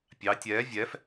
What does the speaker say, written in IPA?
pʲɑ tʲɛː vʲɛf

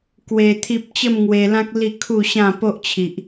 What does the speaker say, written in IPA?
kwe˧t̪ʰi˦p̚ t͡ɕə˥˧mŋwe˧lã˦k̚ li˥˧kʰu˥˧ɕã˥˧ po˦ʔt͡ɕʰi˨ʔ

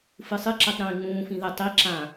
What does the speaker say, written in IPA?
fɨsˤɨǁɛtˤ ɾĩːŋ͡mũːfĩ ðɛtˤiǁã

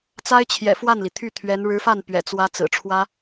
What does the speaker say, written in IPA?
t͡sa˥ɪ̯t͡ɕʰjɛ̰˨˩ fwa˥˩nli˩t̪ʰy˥˩t̪ʰɥɛ˧˥n ɻɻ̩˧˥fa˥˩npɥɛ̰˨˩ t͡swä˥ t͡sɹ̩˨˩ʈ͡ʂʰwä˥

